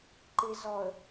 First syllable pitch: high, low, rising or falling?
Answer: low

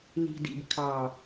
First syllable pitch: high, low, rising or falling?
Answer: low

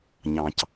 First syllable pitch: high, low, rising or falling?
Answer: low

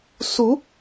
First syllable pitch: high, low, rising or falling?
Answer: rising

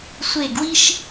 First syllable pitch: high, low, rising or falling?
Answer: falling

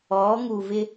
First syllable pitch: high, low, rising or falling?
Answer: rising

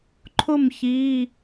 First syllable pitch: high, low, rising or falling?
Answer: falling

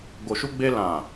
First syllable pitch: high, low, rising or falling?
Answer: low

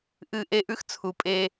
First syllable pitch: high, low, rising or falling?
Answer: falling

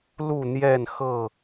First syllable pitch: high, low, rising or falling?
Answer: falling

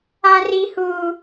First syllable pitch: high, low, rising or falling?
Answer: high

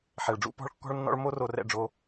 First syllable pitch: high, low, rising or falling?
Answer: low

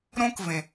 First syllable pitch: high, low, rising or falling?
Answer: high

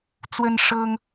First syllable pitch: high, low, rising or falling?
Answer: high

